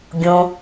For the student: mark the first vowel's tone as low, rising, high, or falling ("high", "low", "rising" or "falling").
low